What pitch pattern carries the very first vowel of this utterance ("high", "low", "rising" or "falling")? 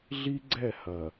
high